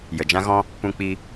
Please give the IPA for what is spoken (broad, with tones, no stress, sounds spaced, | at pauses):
j ə˨ d͡ʒ ã˦ ɣ ɔ̃˦ | p ũ˦ k͡p i˦